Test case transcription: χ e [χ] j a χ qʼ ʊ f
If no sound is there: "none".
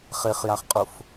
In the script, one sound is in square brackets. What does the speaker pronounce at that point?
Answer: χ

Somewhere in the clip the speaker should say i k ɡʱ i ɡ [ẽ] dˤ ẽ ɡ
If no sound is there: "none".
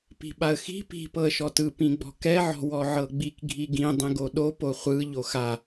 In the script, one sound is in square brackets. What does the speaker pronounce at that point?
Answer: ĩ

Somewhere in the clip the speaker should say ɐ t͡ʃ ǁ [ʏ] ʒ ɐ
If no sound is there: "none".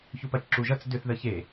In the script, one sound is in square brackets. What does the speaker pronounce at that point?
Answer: u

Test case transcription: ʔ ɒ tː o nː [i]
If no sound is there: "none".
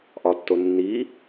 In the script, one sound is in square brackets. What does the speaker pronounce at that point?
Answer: i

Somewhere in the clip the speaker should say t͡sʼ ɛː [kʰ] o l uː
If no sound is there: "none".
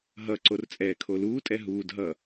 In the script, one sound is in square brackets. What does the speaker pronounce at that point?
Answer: kʰ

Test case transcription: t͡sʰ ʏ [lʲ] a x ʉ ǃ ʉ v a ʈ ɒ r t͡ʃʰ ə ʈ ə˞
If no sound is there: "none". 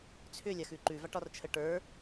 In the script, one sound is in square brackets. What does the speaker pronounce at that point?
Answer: lʲ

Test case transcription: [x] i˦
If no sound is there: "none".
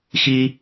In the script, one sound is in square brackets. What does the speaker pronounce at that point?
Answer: x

